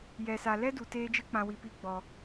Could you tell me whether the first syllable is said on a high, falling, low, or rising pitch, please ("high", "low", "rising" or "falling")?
low